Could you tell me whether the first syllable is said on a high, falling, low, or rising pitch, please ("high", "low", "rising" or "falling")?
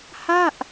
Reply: falling